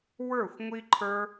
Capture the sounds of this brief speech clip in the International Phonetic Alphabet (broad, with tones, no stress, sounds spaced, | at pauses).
w ə˞˦˨ xʷ ŋʷ i˦ ǃʰ ə˞˦